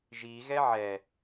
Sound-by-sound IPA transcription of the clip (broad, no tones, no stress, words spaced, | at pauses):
ʒiɣɛ ʕɛ